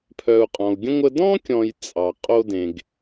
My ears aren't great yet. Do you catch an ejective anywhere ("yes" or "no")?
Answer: yes